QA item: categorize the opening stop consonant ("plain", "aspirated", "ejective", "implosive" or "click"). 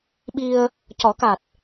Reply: implosive